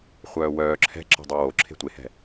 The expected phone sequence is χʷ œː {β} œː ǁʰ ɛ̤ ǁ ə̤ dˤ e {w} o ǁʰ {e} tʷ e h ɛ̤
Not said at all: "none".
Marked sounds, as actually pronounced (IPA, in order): w, w, e̤

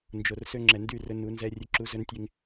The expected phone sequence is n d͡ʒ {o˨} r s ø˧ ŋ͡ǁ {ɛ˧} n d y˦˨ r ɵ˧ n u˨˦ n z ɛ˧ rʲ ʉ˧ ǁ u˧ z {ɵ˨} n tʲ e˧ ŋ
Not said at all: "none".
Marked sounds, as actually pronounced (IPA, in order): o˨, ɛ˨, ɵ˧

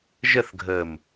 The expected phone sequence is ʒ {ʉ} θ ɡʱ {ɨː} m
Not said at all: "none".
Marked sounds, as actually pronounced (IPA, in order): ə, əː

